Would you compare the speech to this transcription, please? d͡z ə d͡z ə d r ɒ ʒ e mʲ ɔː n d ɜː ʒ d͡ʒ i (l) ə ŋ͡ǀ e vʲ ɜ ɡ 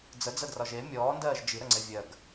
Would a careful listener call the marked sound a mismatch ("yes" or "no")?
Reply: yes